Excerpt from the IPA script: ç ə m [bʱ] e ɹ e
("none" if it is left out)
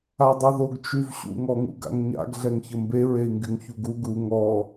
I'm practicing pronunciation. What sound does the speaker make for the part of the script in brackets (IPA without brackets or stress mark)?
b